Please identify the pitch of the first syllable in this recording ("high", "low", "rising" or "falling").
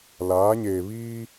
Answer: rising